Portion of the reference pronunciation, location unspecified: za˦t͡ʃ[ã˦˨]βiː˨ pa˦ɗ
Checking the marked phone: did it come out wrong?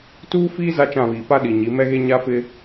no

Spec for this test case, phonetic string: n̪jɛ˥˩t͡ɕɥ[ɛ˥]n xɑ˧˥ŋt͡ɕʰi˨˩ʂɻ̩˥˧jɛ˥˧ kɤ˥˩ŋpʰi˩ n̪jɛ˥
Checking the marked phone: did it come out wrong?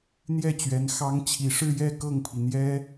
yes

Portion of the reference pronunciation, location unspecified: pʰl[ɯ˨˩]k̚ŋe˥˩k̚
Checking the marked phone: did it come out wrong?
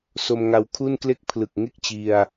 no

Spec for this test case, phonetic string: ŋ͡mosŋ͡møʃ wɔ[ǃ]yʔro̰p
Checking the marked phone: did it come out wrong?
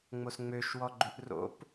yes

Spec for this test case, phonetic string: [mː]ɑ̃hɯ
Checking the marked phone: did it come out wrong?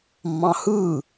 no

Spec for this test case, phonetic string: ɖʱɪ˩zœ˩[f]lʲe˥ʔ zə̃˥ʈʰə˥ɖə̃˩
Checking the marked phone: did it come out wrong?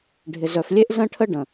no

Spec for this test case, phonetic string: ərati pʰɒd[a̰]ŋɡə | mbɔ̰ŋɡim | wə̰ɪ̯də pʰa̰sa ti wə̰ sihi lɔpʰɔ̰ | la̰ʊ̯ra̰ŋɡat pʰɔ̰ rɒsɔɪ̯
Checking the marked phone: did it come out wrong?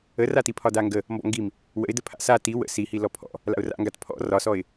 yes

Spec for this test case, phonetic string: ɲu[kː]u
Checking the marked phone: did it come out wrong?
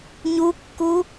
no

